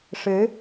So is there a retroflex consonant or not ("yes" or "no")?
yes